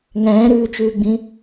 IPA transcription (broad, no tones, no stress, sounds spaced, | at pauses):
ŋ ɛ̃ː ɾ ʉː t͡ʃ ʉː ɡ͡b ĩ